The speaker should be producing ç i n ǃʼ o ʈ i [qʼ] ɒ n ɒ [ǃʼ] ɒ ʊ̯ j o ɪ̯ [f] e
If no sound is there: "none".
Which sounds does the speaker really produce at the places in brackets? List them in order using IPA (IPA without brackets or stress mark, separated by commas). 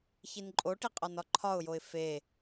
qʼ, ǃʰ, f